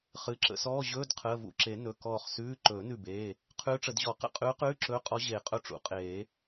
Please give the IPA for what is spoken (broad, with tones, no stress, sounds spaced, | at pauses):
χ ɨ˩˧˩ ǁ ə̰˧˥˧ s ɔː˧˥˧ ʑ ɵː˧˥˧ d qʰ əː˩˧˩ v ṵ˧˩ ǁ e˨˩˦ n ɵ˩˧˩ k ɔː˧˩ χ s ʉː˧˥˧ ǃ ɵː˨˩˦ n ʉ˧˩ b eː˩˧˩ | qʰ ʉː˧˥ ʈ͡ʂ ə˨˩˦ d ʑ ɔ˨˩˦ q ə̰˧˥˧ qʼ ʉː˧˥ q ʉː˧˥˧ ǁ ɵː˧˥ qʼ ɔ˧˥ ʑ eː˨˩˦ qʼ ɵ˧˥ ʈ͡ʂ ṵ˨˩˦ qʼ eː˨˩˦